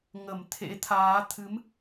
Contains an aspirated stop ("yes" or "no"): yes